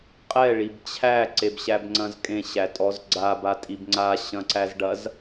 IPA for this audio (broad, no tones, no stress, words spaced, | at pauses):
qʼɛ ɭibt͡ɕʰæ ǀebɕæbŋ͡ǀɐ̃zkʼẽ ɕætʼɔzɡ͡ǀab atʼibŋ͡ǀa ɕɐ̃ǀæzɖɐz